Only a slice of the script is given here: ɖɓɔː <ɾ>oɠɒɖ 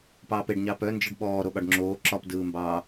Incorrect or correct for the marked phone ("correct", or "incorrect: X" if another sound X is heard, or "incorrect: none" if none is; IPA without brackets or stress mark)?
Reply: correct